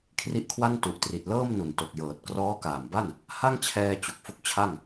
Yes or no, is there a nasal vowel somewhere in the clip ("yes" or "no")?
no